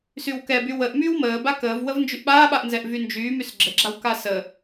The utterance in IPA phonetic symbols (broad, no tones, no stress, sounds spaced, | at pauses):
s y w k ɛ b y w ə ʔ m yː w m əː b a k əː v w ə v n d͡ʒ y ʔ ɓ aː ɓ a ʔ n z ɛ ʔ v y n d͡ʒ yː m y s ɡ͡ǁ ə ɡ͡ǁ a w k a s ə